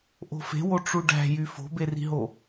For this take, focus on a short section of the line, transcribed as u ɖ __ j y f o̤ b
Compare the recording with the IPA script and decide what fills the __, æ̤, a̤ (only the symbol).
æ̤